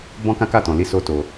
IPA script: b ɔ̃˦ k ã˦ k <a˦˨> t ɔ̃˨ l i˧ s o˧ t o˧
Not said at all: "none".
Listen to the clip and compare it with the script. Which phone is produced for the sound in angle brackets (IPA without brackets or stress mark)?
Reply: a˦˨